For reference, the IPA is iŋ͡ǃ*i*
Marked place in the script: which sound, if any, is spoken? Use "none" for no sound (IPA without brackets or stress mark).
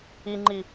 i